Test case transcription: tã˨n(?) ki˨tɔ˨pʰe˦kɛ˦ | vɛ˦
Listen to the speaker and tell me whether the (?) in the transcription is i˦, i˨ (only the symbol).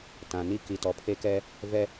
i˦